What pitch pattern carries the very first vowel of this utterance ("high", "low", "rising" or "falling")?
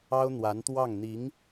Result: high